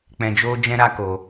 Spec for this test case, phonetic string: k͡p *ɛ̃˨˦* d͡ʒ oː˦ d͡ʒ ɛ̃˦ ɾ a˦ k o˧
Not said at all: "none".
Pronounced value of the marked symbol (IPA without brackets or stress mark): ɛ̃˧